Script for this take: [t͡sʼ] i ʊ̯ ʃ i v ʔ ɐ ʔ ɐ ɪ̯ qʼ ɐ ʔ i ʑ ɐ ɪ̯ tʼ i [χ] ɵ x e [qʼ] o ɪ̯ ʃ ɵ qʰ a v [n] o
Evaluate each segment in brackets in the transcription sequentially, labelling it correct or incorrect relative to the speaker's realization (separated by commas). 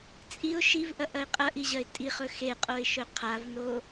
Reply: correct, correct, correct, correct